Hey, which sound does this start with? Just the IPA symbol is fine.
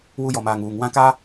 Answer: w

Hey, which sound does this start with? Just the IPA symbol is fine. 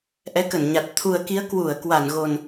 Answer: ʔ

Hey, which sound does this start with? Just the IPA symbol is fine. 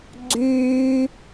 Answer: ɡ͡ǀ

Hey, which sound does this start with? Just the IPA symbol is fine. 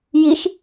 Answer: j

